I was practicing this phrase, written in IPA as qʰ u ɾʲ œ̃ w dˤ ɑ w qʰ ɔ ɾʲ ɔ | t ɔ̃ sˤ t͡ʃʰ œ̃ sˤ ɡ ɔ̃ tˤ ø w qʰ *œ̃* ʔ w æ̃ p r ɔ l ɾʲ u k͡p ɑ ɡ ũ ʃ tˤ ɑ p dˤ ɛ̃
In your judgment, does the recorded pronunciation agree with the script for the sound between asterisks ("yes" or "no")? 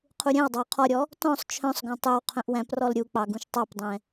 yes